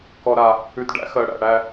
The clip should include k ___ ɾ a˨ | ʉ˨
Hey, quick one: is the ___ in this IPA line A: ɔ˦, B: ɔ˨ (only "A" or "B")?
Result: B